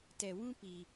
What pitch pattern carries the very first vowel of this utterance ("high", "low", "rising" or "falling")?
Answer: low